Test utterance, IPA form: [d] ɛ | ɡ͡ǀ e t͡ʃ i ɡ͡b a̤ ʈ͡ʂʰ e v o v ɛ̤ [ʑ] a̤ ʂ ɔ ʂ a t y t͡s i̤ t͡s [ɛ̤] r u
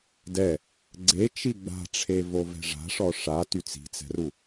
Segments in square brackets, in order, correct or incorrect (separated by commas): correct, incorrect, correct